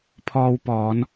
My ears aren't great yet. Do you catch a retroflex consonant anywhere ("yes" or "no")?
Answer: no